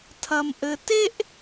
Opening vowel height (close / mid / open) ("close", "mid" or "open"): open